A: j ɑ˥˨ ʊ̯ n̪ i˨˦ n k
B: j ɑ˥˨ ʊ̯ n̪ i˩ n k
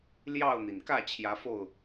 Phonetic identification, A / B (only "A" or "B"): B